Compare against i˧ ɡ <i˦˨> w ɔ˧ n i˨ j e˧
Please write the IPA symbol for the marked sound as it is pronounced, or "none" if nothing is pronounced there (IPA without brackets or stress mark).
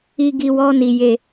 i˧